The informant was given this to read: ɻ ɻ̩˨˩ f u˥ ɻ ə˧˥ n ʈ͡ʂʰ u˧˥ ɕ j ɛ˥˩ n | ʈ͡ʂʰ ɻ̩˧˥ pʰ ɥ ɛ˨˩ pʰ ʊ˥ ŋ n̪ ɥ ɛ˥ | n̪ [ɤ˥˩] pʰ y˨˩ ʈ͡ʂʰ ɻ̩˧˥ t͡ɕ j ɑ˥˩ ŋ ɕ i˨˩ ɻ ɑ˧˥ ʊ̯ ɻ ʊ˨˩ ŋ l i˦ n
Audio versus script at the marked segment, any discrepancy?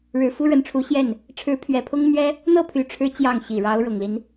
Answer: no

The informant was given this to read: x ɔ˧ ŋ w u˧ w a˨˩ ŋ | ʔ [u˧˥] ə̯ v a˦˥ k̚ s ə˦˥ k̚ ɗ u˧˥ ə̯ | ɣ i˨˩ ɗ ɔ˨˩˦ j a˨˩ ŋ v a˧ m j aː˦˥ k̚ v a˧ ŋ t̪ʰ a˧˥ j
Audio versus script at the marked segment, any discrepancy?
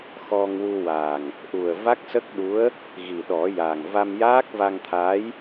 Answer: yes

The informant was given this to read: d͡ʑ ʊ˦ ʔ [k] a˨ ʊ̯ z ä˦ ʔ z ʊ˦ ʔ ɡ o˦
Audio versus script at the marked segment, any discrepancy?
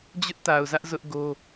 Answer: yes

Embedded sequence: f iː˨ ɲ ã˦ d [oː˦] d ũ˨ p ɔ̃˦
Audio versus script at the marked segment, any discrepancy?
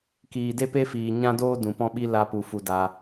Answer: no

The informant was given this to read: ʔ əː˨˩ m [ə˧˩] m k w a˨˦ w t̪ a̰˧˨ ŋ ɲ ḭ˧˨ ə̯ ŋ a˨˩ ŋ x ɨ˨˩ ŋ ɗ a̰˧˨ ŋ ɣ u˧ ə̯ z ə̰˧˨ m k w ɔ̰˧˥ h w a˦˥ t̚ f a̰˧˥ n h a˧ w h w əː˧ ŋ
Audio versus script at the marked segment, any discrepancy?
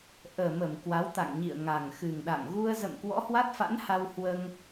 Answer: no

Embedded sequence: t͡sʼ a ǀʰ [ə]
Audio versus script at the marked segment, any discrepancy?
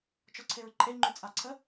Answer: no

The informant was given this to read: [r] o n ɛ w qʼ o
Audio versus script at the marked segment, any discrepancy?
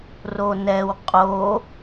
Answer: no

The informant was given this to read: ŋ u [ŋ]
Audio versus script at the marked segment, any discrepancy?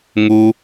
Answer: yes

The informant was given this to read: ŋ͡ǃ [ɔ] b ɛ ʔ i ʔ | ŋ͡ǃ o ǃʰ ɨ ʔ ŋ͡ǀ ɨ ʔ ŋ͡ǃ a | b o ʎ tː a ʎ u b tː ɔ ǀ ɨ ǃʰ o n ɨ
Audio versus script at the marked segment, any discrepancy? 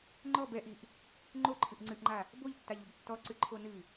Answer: no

